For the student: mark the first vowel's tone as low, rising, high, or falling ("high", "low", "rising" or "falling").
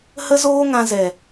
high